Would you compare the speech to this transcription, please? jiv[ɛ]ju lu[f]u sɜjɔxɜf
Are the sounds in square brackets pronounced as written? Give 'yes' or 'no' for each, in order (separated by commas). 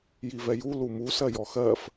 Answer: yes, no